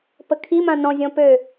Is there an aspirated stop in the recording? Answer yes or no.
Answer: yes